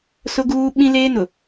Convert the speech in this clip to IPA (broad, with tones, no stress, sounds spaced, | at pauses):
s ʊ˦ ɡ uː˦ ɓ ĩ˦ l eː˦ n ʊ˨